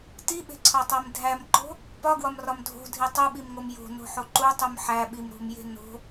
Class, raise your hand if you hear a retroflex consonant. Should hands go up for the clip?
no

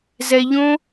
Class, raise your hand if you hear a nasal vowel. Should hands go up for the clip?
yes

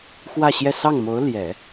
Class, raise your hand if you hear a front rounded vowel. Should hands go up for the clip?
no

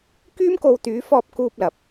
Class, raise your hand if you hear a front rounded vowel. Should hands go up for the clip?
yes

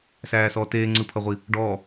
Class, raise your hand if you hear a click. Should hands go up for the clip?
yes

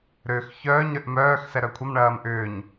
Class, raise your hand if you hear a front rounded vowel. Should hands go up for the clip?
yes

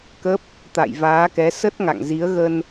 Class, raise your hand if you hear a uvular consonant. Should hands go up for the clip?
no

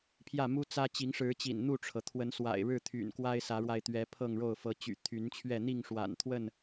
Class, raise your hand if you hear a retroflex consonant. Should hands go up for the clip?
yes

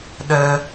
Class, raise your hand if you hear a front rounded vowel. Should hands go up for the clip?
no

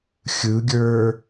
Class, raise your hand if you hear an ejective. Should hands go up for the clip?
no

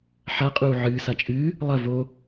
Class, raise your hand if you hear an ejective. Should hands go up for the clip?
yes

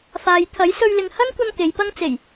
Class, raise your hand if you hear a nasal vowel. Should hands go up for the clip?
no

